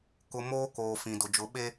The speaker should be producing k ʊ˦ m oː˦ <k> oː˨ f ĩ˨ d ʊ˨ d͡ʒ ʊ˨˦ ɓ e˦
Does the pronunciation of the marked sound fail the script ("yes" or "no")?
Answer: no